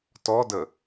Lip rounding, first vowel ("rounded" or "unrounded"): rounded